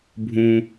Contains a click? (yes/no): no